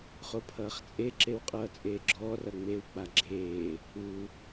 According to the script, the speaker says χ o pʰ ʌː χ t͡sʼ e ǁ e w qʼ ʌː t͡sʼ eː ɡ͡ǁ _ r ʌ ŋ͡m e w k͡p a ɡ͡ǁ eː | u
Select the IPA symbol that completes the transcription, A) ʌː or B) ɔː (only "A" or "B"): B